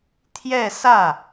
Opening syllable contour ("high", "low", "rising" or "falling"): falling